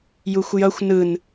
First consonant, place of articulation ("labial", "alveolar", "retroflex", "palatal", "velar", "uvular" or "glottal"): palatal